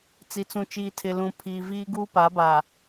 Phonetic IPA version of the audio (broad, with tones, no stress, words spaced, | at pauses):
t͡si˨t͡sũ˨t͡ʃiː˨tʰɪ˨ lũ˨ pʰiː˨viː˦ ɡuː˦pa˨˦ba˨